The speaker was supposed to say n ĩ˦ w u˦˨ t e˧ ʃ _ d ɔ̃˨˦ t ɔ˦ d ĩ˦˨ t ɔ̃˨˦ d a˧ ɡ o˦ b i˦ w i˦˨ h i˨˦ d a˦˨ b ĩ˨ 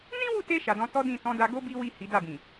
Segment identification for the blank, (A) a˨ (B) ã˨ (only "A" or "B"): A